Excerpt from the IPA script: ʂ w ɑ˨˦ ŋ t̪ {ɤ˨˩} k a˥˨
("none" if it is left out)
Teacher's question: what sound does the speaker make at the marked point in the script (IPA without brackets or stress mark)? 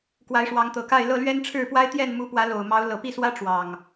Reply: ɤ˨˩